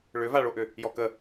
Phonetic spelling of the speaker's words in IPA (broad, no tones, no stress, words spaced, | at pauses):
ɭʏvaɭoʔʏ | jɔkə